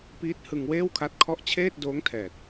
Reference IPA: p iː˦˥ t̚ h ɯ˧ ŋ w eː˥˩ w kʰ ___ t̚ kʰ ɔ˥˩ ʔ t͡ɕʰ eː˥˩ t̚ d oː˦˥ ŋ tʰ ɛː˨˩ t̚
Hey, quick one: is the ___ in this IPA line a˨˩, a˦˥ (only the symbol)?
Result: a˦˥